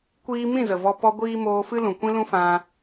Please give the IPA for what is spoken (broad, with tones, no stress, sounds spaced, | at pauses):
kʷ iː˧ m ĩ˦˨ z ə˨ v ɔ˧ p ɔ˧ ɡʷ iː˦ m oː˧ f ɨ˦ l ũ˨ kʷ ĩ˦ l ũ˦ f ã˧